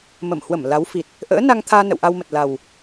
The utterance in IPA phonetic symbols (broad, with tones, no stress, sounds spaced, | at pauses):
m ə˧˩ m h w ə˧˩ m l a˨˦ w f i˨˩ t̚ | ʔ ə̰ː˧˥ n a˧ ŋ t̪ʰ aː˧ n ə̰˧˨ w ʔ a˧ w m ə˨˩ t̚ l a˨˩ w